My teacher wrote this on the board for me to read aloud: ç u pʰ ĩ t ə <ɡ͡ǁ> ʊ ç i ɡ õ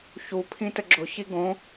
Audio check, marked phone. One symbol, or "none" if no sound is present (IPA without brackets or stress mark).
ɡ͡ǁ